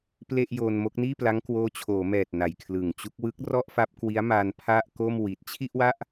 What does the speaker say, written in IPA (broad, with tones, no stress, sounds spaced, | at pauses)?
p l e˥˩ ʔ j oː˧ n m o˦˥ k̚ n iː˥˩ p l a˦˥ ŋ k w oː˦˥ t͡ɕʰ oː˩˦ m ɛː˨˩ t̚ n a˨˩ j kʰ l ɯ˨˩ ŋ t͡ɕ u˦˥ k̚ w ɯ˦˥ k̚ r ɔ˥˩ ʔ f a˦˥ p̚ k w i˦˥ a̯ m a˧ n pʰ a˥˩ ʔ k o˥˩ m w i˨˩ t̚ t͡ɕʰ i˥˩ ʔ w a˥˩ ʔ